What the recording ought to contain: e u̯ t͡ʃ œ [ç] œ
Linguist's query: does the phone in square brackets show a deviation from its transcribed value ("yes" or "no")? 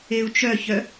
no